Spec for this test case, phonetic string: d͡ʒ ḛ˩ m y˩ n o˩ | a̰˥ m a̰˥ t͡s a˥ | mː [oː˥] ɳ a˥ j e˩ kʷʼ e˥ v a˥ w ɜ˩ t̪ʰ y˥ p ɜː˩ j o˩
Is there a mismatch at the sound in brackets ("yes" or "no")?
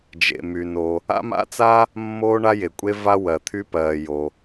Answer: no